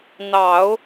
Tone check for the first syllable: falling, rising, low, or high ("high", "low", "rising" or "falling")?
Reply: low